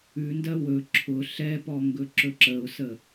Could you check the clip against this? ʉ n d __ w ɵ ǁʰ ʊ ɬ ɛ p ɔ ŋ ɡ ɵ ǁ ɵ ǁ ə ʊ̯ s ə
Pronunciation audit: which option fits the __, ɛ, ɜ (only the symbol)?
ɜ